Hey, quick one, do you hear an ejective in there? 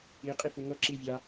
yes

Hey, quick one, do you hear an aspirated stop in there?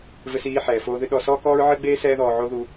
no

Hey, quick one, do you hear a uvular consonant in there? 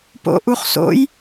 yes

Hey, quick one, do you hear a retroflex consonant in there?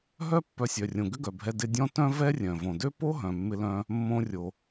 no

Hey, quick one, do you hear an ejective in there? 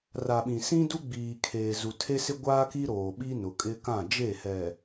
yes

